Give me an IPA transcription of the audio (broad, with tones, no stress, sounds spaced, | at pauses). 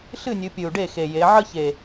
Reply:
ɬ ɨ˥˩ nʲ ɨ˩˧ pʲ ɨ˨˩ u̯ ɖ e˥˩ x e˨˩ j e˩˧ ʕ ə˥˧ ç e˨˩